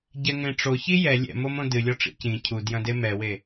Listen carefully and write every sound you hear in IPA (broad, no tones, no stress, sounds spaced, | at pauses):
ɟ ɛ ŋ ẽ ʈ͡ʂ o ç i j ɛ lʲ ɛ̰ m o m õ d ɨ lʲ ɔ ʈ͡ʂ ḭ c ĩ cʰ u d j ɐ̃ d e m ɛ w e